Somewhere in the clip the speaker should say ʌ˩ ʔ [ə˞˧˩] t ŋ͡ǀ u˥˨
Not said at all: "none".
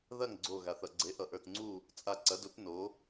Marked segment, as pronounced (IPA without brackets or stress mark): ə˞˧˩